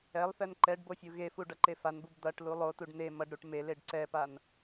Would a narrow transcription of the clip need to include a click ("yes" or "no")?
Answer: yes